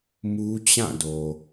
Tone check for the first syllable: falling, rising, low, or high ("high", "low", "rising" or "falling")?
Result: high